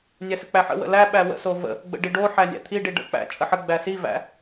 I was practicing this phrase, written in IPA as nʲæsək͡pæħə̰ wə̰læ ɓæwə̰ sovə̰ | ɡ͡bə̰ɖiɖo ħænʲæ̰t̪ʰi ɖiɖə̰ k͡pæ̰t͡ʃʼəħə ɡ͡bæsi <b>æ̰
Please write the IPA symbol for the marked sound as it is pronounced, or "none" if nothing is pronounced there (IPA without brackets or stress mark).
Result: v